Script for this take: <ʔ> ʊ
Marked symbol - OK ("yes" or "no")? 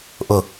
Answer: yes